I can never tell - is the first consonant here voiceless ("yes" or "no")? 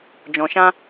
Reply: no